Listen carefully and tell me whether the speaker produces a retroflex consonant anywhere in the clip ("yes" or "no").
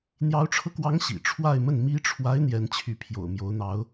yes